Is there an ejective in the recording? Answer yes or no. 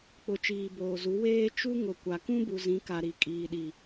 yes